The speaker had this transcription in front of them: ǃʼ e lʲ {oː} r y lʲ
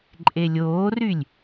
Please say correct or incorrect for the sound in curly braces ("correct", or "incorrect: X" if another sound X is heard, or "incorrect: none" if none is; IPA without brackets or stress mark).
correct